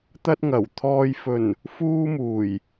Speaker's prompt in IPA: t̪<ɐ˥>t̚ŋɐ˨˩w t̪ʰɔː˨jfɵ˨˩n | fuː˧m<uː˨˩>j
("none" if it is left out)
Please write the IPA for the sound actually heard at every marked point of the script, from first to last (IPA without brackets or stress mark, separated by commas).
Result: ɐ˧, uː˨˩